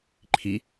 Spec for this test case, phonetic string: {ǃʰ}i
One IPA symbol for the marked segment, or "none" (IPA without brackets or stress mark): ǃʰ